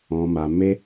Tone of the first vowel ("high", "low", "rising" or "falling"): low